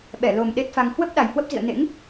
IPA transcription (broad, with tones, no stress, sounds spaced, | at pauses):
ɓ ɛ˧˩ l o˨˩ m ɗ e˦˥ t̚ f a˧ ŋ h w ə˦˥ p̚ ɗ a˨˩ j h w ə˦˥ p̚ z ḭ˧˨ ə̯ n ḛ˧˥ ŋ